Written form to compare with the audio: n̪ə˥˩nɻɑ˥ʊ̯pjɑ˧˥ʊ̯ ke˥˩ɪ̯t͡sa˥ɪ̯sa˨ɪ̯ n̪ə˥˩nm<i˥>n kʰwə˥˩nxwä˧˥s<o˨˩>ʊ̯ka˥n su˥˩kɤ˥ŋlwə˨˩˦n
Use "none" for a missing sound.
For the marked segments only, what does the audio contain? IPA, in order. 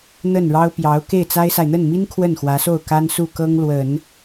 i˥, o˥˩

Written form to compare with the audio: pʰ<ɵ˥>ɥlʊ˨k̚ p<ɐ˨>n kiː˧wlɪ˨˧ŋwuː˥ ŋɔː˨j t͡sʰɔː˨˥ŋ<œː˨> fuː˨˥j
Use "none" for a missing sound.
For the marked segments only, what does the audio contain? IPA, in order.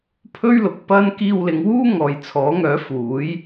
ɵ˥, ɐ˥, œː˨˥

